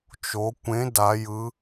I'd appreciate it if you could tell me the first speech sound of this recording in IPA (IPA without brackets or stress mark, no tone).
t͡ʃ